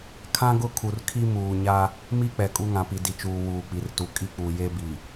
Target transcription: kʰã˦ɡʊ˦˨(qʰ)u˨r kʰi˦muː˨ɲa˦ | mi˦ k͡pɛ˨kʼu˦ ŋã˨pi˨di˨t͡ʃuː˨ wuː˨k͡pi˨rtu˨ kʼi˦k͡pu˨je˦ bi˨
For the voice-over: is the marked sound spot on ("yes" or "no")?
no